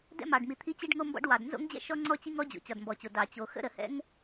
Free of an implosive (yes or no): yes